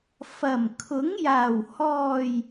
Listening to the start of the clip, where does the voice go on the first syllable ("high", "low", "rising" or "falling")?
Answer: low